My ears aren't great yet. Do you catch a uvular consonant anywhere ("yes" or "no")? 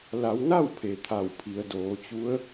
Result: no